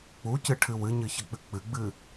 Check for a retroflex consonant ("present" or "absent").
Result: present